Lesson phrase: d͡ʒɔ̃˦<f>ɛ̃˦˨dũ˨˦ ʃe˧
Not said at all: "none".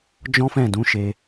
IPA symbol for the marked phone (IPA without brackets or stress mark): f